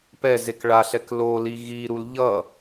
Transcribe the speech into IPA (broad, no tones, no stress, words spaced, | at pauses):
pɛzek ɭaɬɛk loli ɣiɾul ʎʌ